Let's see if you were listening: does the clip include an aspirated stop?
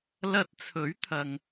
yes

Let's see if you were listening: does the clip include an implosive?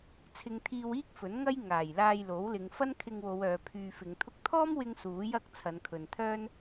no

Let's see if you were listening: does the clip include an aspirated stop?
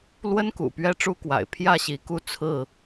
yes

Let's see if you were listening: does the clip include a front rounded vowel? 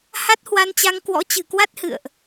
no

